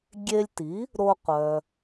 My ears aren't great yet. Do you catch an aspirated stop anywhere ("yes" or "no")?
no